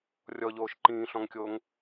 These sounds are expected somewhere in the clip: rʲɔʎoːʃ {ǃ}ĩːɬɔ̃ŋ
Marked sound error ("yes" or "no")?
no